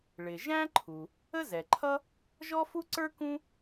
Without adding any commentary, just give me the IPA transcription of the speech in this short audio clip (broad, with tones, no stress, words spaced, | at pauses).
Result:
ɭɪ˩ʒæ̃˥ǃʰu˩ | ə˥zɛ˩ǃʰʌ˥ | ʒɔ˥fu˥ǀə˞˥ kũ˥